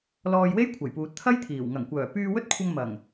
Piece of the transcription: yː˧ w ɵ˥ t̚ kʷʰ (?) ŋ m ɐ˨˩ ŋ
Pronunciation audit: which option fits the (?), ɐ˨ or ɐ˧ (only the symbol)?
ɐ˧